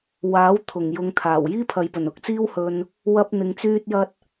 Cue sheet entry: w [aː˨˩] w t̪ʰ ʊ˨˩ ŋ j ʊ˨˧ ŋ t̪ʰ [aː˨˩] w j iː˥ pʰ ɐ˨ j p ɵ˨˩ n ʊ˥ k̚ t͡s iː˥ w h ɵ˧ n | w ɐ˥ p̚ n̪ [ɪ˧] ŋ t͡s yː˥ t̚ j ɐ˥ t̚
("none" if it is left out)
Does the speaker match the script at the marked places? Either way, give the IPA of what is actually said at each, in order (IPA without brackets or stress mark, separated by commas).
aː˨˥, aː˨˩, ɪ˧